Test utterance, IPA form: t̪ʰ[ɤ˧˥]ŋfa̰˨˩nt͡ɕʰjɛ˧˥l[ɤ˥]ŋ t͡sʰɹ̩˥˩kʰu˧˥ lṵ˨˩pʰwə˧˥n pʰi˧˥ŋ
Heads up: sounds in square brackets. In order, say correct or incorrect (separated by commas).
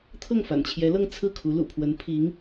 incorrect, incorrect